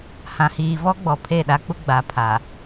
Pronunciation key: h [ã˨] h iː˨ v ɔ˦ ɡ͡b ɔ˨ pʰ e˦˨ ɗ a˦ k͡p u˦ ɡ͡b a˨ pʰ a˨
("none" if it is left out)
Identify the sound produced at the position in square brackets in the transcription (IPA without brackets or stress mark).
ã˨